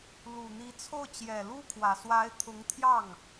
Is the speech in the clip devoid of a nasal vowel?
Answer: yes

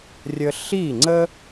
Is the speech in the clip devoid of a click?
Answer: no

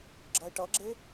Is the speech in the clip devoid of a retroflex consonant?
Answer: no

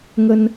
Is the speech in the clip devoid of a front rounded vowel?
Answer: yes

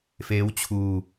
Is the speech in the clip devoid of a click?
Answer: yes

